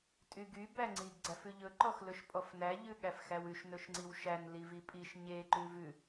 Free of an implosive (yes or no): no